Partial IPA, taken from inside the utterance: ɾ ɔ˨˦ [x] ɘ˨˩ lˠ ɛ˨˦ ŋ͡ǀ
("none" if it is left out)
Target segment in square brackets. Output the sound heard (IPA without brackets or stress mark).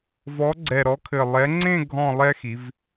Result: kʰ